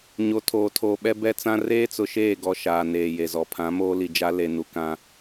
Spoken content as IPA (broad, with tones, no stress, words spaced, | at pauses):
ɲo˨tʰoː˨tʰoː˨ ɓɛ˦bɛ˦ t͡sã˦ reː˦t͡sʊ˨ʃeː˦˨ ɡɔ˦ʃaː˨ neː˨je˨zɔ˨ pʰã˨˦moː˦ li˨d͡ʒa˦ le˨nu˨kã˦